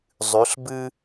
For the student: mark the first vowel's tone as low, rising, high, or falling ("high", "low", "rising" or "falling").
rising